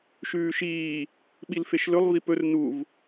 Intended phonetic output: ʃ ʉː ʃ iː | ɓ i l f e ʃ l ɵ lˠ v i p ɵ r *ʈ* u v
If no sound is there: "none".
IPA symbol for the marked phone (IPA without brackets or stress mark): n